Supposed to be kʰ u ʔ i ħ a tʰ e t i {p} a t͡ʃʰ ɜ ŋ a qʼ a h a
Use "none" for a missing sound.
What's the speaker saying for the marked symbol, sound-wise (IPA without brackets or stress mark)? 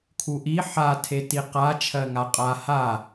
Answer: q